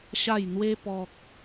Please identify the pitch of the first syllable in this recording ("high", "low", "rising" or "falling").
falling